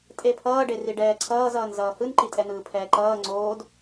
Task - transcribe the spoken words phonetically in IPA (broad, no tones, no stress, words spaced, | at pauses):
tʼepʰʌːɖe riɖɛːǀʰʌːzʌːn zʌːhɯnǃi tʼɛn̪ɯːpʰɛːǃʌː ŋ͡ǀoːd